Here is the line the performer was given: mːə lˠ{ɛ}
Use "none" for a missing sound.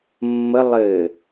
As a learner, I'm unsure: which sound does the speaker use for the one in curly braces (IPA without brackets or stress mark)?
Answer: ɘ